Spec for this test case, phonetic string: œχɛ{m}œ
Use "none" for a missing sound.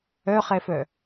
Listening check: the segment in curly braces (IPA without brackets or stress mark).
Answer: f